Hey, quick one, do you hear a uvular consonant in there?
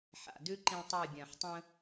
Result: no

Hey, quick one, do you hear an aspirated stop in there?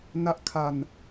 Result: yes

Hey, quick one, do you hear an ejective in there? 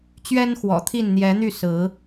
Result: no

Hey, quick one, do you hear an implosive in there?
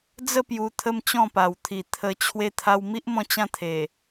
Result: no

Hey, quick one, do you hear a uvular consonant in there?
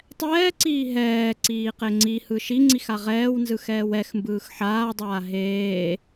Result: yes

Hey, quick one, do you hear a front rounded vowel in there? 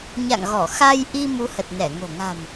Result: no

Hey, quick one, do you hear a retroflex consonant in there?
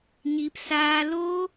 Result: no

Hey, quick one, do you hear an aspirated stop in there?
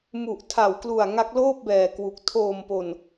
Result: yes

